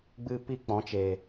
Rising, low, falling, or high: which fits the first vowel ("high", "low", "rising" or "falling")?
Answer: high